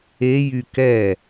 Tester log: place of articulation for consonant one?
palatal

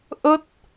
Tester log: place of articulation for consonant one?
glottal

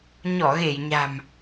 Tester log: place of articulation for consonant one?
palatal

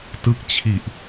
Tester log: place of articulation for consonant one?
alveolar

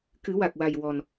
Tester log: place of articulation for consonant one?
velar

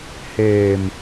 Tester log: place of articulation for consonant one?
glottal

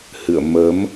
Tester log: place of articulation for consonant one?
glottal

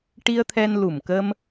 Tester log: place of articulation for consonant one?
retroflex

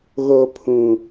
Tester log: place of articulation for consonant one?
velar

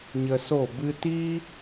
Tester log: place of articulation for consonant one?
palatal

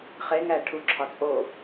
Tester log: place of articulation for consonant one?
uvular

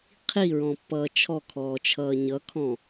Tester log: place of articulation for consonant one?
uvular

